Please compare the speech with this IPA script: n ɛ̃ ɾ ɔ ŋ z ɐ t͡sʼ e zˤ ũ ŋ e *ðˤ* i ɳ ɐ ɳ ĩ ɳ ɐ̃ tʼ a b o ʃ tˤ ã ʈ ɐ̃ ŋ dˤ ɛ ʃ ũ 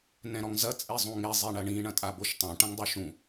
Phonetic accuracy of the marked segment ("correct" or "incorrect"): incorrect